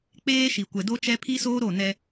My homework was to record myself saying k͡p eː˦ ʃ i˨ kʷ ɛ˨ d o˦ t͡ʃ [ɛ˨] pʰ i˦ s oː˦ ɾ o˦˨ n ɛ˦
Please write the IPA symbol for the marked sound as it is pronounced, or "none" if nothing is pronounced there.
ɛ˦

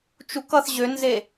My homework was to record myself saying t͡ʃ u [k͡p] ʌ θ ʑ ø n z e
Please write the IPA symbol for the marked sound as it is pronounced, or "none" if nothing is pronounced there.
k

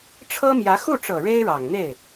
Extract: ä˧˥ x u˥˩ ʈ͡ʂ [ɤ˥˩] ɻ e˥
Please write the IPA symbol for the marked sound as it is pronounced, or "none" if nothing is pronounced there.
ɤ˨˩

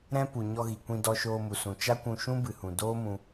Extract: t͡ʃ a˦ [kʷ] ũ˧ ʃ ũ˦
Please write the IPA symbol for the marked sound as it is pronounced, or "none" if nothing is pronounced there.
kʷ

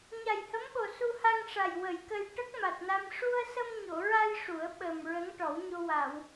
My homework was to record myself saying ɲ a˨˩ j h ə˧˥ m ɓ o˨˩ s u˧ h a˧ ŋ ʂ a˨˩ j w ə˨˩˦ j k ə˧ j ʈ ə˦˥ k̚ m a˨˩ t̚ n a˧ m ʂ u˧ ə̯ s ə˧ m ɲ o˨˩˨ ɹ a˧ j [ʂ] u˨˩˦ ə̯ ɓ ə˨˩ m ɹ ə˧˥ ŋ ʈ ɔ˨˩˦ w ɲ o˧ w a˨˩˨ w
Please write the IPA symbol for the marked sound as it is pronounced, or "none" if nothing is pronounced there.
ʂ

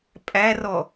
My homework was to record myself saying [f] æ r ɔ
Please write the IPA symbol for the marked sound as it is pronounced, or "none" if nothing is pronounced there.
pʼ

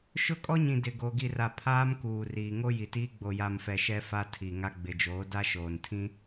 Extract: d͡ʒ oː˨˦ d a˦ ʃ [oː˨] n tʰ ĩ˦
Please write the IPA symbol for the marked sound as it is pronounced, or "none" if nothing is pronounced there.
oː˨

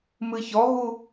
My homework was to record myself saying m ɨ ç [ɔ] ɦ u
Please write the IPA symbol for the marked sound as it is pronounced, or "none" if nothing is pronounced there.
ɔ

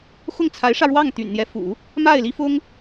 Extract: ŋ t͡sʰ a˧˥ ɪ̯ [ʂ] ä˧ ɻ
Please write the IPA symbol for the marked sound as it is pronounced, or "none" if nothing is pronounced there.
ʂ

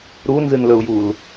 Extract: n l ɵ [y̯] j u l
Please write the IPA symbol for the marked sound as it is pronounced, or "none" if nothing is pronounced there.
u̯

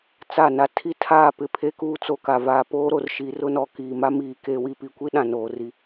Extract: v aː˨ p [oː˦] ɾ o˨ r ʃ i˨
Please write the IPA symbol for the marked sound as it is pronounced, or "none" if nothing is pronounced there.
oː˦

